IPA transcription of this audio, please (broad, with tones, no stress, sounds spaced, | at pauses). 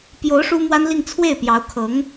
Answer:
p j o˧˥ ʊ̯ ʂ u˥ m w a˥ n l i˥˧ ŋ t͡sʰ w e˥˩ ɪ̯ p j ɑ˧˥ ʊ̯ kʰ ɤ˧˥ ŋ